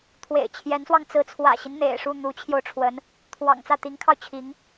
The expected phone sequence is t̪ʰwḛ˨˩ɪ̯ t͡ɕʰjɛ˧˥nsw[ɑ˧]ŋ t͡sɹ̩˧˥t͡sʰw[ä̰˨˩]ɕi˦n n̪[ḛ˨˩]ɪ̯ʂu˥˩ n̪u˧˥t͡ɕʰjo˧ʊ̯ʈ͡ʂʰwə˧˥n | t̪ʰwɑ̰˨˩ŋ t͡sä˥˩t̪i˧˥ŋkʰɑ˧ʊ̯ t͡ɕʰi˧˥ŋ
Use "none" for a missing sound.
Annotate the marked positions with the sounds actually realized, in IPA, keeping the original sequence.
ɑ˧, ä̰˨˩, ḛ˨˩

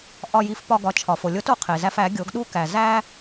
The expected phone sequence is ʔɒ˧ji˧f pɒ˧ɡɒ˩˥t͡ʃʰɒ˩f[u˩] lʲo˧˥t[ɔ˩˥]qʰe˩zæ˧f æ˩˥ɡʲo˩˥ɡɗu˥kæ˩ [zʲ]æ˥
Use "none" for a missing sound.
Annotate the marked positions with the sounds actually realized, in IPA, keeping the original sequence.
o˩, o˩˥, z

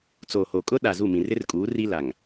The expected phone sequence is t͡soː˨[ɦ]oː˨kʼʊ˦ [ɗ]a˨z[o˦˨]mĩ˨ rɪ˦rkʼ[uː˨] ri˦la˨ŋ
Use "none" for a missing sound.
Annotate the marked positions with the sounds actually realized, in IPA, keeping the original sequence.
h, ɗ, u˦˨, uː˨˦

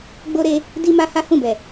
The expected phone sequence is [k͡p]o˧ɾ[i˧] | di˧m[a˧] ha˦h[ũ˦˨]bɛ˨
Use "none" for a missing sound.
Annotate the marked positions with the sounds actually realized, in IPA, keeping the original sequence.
ɡ͡b, e˧, a˧, ũ˦˨

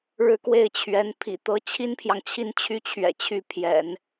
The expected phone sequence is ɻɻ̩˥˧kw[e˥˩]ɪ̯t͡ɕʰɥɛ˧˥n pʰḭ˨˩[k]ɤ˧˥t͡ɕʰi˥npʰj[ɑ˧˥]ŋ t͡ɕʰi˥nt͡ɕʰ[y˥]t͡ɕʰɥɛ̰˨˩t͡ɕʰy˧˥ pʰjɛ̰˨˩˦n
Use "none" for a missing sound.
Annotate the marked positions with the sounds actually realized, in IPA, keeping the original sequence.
e˥˩, t̪, ɑ˨, y˥

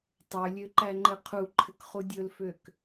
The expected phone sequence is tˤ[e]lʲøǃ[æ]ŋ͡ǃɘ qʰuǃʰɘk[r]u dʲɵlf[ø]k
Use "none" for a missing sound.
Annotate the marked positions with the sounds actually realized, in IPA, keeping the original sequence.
ø, æ, χ, ø

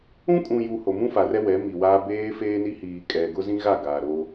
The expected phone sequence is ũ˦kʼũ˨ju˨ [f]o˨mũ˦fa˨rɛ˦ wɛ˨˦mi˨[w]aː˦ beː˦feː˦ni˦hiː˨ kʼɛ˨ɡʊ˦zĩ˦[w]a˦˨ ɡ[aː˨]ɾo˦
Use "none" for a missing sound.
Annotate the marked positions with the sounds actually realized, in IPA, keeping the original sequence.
h, w, ɣ, aː˨

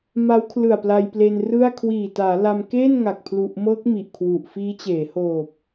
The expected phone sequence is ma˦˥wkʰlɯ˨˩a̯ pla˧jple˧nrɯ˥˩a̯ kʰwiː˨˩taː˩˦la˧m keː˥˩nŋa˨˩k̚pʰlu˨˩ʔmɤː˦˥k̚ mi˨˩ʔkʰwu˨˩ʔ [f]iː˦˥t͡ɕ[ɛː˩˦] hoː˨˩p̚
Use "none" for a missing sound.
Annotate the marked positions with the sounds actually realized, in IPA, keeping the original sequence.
f, eː˩˦

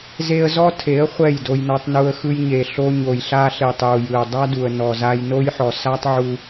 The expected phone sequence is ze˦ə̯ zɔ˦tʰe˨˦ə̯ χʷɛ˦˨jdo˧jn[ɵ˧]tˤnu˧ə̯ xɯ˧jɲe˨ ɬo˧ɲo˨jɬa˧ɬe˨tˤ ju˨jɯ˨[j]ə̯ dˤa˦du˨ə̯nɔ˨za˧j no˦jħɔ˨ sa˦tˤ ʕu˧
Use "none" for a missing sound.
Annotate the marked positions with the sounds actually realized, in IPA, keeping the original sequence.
ɔ˧, none

